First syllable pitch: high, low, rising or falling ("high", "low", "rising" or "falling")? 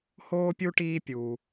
high